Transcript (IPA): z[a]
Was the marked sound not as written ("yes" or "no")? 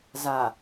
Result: no